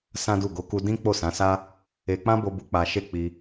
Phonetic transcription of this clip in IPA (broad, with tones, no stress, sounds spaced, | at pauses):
s ã˦ d u˦˨ ɡ o˨˦ k u˧ d ĩ˦ k͡p o˦˨ s ã˨˦ s a˦ | e˧ k͡p ã˦ b o˧ b u˧ k͡p a˧ ʃ e˦ k͡p i˧